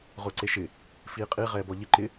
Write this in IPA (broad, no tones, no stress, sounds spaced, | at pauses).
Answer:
ʁ ʊː ǀ e ʃ ɪ | f iː qʼ i ʁ ɛː b ɔ ʎ ɪ ǃ ɪ